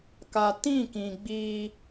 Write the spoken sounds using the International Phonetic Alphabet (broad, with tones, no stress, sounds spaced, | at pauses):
k a˨ t ĩ˦˨ k ĩ˨ ɡ͡b iː˦